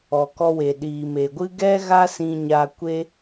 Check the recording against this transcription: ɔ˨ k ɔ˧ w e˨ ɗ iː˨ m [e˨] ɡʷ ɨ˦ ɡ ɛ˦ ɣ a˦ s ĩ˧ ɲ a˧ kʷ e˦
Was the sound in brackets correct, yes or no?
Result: yes